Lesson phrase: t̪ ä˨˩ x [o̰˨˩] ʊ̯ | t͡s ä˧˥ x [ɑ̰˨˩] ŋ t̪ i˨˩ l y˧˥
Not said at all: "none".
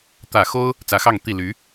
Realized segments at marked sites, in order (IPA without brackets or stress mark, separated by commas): o˥, ɑ˥˩